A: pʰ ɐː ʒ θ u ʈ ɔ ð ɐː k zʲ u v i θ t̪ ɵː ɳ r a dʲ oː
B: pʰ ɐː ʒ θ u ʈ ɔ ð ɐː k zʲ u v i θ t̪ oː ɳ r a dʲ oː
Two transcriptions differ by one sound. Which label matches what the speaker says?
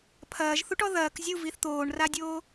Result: B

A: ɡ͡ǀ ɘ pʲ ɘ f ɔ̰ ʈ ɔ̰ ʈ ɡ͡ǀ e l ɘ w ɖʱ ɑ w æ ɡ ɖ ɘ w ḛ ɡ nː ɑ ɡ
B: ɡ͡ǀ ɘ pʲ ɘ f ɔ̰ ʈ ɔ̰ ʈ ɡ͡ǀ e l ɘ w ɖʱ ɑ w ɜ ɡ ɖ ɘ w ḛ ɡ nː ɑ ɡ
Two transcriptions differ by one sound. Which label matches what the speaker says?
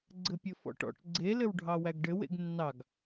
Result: A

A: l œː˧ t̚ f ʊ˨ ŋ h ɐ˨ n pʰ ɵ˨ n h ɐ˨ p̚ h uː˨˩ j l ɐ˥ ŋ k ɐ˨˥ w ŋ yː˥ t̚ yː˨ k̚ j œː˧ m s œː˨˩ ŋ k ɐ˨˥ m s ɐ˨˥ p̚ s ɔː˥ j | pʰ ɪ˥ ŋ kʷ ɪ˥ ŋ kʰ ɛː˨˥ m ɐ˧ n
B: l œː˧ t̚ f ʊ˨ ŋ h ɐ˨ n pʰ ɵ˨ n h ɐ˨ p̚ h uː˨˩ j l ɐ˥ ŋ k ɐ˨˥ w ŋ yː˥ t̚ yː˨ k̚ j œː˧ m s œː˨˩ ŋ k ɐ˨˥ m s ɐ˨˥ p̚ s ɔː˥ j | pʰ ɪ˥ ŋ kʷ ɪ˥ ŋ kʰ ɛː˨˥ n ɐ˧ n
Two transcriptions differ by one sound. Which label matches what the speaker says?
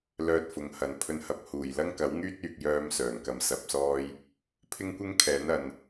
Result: B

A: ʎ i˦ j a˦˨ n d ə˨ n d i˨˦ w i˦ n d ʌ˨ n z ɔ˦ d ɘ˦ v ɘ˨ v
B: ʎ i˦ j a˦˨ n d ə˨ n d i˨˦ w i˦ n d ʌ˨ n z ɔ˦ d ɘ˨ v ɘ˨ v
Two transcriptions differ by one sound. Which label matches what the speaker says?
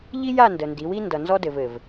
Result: B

